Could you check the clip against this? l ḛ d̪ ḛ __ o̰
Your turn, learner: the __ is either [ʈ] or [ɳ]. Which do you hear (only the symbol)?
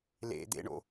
ɳ